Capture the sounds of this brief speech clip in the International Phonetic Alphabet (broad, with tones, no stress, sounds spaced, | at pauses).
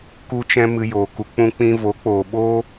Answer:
k u˧ t͡ʃ ɛ̃˧ m ɨ˧ j oː˨ k u˧ k͡p ũ˧ k͡p ĩ˧ v o˨˦ k͡p oː˨ ɓ oː˦